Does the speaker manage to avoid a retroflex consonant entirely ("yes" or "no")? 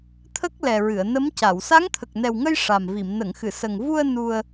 no